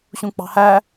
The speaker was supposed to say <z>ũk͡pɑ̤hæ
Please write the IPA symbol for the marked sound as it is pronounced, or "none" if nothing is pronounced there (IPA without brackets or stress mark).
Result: ɕ